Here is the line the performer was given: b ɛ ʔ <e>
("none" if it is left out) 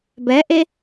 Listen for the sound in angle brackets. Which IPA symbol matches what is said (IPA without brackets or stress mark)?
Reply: e